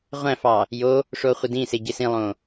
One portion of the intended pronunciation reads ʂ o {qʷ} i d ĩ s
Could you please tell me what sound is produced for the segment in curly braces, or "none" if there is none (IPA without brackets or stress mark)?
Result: χʷ